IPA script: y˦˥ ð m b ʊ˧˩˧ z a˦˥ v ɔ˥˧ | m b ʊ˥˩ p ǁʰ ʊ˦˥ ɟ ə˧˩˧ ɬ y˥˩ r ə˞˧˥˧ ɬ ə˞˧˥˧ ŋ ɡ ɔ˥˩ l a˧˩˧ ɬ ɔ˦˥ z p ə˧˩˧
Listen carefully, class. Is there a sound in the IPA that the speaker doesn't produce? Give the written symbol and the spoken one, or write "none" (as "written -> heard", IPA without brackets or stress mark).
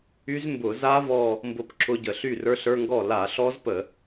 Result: ð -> z